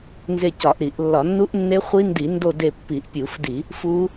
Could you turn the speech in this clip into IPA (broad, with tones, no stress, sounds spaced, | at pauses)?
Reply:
n z e˦˨ c ɒ˧˩˧ ʔ ɾ i˧˩˧ ʔ lː ɒ˧˩˧ nː u˦˥ ʔ nː e˦˥ χʷ i˦˥ n d i˧˩˧ n d o˦˨ d e˦˨ pː i˧˩˧ ʔ pʲ u˧˩˧ f d i˧˩˧ | f u˦˥